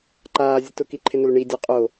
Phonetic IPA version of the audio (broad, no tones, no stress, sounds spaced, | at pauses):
ǃ aː zʲ ə t ʊ k i ǃʰ ɪ n ʊ l ɳ i dʲ o qʼ o